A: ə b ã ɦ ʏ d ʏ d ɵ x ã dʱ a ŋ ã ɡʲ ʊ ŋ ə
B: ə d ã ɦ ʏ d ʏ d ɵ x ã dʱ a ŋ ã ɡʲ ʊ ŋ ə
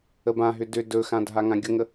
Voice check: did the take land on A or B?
A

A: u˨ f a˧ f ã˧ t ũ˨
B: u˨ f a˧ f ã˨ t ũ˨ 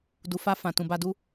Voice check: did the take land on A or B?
B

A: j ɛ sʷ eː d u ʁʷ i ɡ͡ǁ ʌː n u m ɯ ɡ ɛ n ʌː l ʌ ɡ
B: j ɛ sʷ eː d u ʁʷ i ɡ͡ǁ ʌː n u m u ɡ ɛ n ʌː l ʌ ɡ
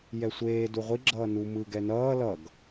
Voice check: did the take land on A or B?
A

